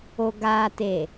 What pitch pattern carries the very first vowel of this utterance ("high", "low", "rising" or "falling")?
low